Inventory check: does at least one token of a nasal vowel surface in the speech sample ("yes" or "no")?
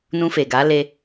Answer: yes